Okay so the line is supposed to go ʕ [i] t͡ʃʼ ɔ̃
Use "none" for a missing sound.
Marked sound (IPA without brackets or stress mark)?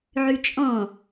y